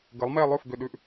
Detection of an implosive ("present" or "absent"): present